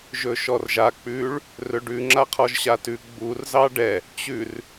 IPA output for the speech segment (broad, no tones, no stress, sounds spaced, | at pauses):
ʒ ɵ ʃ ɔ r ʒ a k͡p ʉ ɭ | r ɵ ɖ ʉ ŋ͡ǁ a qʰ ɔ ʒ ɕ a t ʉ ɡ͡b u r z ɑ ɖ ɛ | t͡ɕ ʉ r